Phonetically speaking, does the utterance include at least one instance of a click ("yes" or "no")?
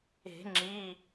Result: yes